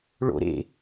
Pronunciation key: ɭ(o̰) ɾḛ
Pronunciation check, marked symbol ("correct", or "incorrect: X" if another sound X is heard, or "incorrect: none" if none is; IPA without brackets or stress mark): correct